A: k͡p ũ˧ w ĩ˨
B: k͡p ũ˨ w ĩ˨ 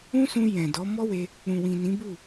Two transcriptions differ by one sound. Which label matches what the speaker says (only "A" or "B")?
B